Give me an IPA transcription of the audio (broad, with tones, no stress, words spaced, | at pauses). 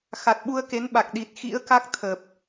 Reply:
xa˨˩t̚ɓu˧ə̯ke˨˦nɓa˨˩k̚ ɗi˨˩t̚xḭ˧˥ə̯ka˦˥k̚ t̪ʰə˨˩p̚